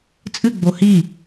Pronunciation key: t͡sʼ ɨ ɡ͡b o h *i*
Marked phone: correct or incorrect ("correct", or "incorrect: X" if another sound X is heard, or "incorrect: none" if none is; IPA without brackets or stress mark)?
correct